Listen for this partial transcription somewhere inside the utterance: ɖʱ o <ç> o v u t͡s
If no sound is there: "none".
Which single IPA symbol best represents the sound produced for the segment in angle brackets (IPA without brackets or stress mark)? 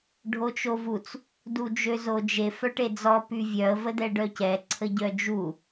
t͡ʃ